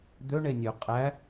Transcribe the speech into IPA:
d̪ ø ɳ e nʲ ø qʼ æ

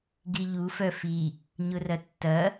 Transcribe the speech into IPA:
ɡ i ʎ u f œ f i | ɲ ʊ r ɐ tː ɐ

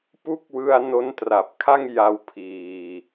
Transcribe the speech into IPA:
p u˦˥ k̚ w ɯ˧ a̯ n o˦˥ n t r a˨˩ p̚ kʰ a˥˩ ŋ j a˧ w pʰ iː˧

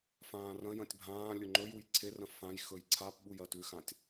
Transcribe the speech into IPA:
f ãː r ɐ̃ j ɐ̃ tʲ bʱ ãː lʲ ɵ ŋ͡ǃ ɵ j u j ǀʰ e r ɐ̃ f ã j x ɵ j ǀʰ a p ɓ u j ɐ t ʉ x ã tʲ

